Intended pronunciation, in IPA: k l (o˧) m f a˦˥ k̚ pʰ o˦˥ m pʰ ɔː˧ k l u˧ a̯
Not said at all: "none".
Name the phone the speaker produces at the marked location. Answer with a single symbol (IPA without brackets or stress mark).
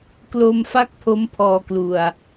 o˧